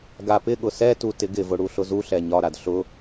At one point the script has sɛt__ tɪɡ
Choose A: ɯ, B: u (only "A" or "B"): B